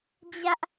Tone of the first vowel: high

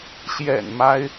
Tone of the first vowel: low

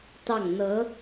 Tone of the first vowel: falling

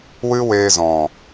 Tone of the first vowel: high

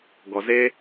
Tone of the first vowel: low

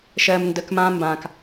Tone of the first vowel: low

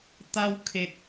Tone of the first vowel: high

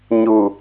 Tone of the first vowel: low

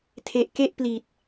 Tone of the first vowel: low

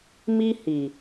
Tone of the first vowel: high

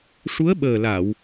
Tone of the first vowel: rising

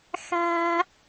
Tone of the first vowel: high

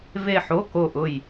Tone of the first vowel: falling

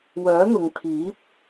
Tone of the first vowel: rising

